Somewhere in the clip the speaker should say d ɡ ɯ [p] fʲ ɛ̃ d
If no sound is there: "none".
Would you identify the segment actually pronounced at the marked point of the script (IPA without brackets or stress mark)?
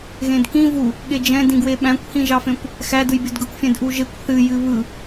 kʷ